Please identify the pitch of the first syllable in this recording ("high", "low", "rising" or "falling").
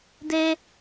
high